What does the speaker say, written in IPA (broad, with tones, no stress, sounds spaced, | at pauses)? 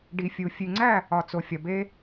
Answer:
ɖ i˨ fʲ u˨ fʲ ʉ˨ ŋ͡ǀ æ˦˨ | ɒ˨ t͡s o˨ fʲ ɒ˨ b e˦